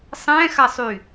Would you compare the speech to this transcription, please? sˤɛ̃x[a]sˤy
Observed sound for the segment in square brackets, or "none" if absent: a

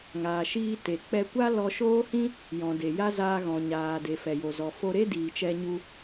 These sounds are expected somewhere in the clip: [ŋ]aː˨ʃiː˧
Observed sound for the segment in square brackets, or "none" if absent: ŋ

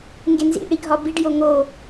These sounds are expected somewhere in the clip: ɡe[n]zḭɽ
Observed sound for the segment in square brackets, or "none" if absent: n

